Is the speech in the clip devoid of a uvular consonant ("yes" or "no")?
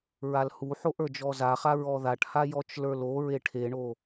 no